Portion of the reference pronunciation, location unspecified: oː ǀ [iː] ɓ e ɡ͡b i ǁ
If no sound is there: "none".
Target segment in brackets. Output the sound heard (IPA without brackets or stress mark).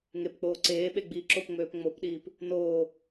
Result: eː